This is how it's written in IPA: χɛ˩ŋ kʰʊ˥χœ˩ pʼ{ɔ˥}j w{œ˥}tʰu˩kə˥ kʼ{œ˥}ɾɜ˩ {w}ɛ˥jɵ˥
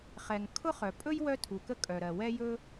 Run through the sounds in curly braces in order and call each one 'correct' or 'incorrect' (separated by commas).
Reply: incorrect, correct, incorrect, correct